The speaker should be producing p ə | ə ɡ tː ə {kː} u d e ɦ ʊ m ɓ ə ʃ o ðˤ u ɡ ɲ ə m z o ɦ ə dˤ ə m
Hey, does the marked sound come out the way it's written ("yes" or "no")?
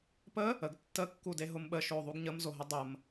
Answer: yes